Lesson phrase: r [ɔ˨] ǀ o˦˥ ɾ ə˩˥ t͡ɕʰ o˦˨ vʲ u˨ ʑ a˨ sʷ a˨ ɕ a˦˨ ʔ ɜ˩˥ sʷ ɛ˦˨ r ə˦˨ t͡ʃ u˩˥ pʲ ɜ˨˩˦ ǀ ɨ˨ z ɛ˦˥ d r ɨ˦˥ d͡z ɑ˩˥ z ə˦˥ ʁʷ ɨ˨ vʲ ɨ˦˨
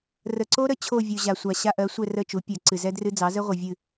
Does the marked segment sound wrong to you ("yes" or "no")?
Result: yes